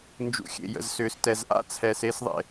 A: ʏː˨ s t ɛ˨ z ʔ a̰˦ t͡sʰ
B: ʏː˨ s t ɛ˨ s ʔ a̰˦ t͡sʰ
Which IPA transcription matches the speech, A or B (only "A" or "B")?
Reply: A